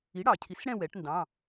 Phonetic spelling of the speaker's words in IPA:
i˩˥ ɽ ɑ˩ cʰ i˩˥ s ɽ ɛ̃˦˨ w ɛ˩˥ ʈ n d ɑ̃˩˧˩

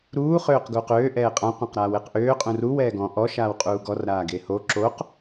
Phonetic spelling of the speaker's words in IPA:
ɾ uː χ øː q ɡ uː q øː ʔ ɛː qʼ ã qʷ ã q ɾ aː w e q ʔ øː qʼ ũ r u w ɛː ɡ ɔ̃ ʔ ɔ ʃ aː w qʼ uː ɡ ɔ r ɾ aː ɡ e h o ǁ o q

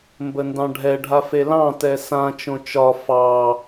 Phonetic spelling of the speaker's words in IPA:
m b ə n d ɑ̃ ɖʱ ɛ ɖʱ a f e l ɑ̃ t ɛ s ã t͡ʃ õ t͡ʃ ɒ f ɑ

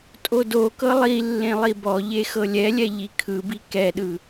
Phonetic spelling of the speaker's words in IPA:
tʼ o d o k ɤ lˠ i lː ẽ lˠ i b ɔ ʎ e x ɤ lʲ ɛ lʲ ɛ ʎ i kʰ ɯ b i k ɛ ɗ ɯ

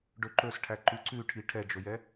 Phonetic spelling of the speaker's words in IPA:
ɖ ɵ ǃ ɵ s ʈʰ æ ǃ ʉ ǀ ʉ ʈʰ i ʈʰ ɛ d͡ʒ ɵ j ɛ

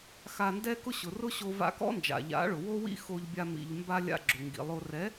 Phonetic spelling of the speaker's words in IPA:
x a˧ n d ɛ˦ k ʊ˦ ɕ ʊ˨ r ʊ˦ ɕ o˧ v a̰˧ k ɔ̰˦ n d͡ʒ a̰˨ ʎ a̰˨˦ ɭ ʊ˨ w o˦ w ḭ˦ x o˧ ʎ bʲ a˧ m ḭ˨ ʎ m b a˧ lʲ a̰˧ ɡ͡ǁ ʊ˨ ŋ ɡ ḭ˨ lˠ o˧ r ɛ˨˦

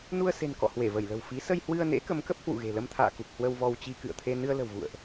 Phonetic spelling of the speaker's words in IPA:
n u˧ ə̯ s e̤˨˩ n k ɔ̰˧˨ h w e˧˩ v ə˧˩ j l ə̤˨˩ w f i˨˦ s ə˧ j h w ɨ˧ ə̯ n ḛ˧˥ k ə˨˦ m k ə˦˥ p̚ h w ṵ˧˨ ɣ e̤˨˩ l ə˧ m t̪ʰ a̰ː˧˨ k u˨˩ k̚ h w ə˧ w v ɔ˧ w t͡ɕ i˧ k ɨ̰˧˨ ə̯ t̪ʰ e˧ n ɨ˧ ə̯ l ə̤˨˩ w v ṵ˧˨ ə̯ ʔ

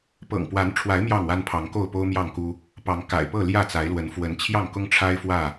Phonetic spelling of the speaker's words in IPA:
p ɤ̰˨˩ ŋ p w a˨˦ n ʈ͡ʂʰ w a˨˦ ɪ̯ m j ɑ˥˨ ŋ w a˦ n pʰ ɑ˨˦ ŋ k o˥˨ ʊ̯ p o˦ ʊ̯ m j ɑ˥˨ ŋ k u˦ | p ɑ˨˦ ŋ k a̰˨˩ ɪ̯ p ɤ˥˨ l j ä˥˨ t͡s a˨˦ ɪ̯ l w ə˨˦ n f w ə˨˦ n t͡ɕʰ j ɑ˥˨ ŋ k ʊ˦ ŋ ʈ͡ʂʰ a˦ ɪ̯ f w ä˥˨

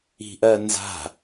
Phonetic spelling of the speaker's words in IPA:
i̤ ʔ ɜ n z a̤

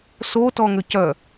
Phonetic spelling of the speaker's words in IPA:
s o t ɔ ŋ ʏ c œ

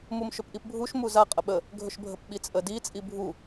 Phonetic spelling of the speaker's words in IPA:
m u m ʃ ɵ p ʔ i p bʱ u ʃ m u z a qʼ ə ɓ ə | ɡʱ ɵ ʃ bʱ ə p ɓ i t͡sʼ ə d i t͡sʼ i bʱ u

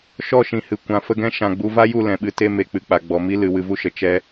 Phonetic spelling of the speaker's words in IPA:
ʃ ɔ˦˨ ʃ ĩ˨ h ɨ˨ kʷ ã˨ f ə˧ ɡ ɛ̃˦ ʃ ã˨ ɡ͡b u˧ v a˦ j u˦˨ l ɛ̃˨ ɓ ɨ˨˦ t e˦ m e˨ k͡p ɨ˨ k͡p a˨ ɡ͡b ɔ˨ m i˦ l ɨ˨ w ɨ˧ v u˦ ʃ ə˨ t͡ʃ ɛ˦

